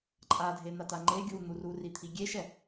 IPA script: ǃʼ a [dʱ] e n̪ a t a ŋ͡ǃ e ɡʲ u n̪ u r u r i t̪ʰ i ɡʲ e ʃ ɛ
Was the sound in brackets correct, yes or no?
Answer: yes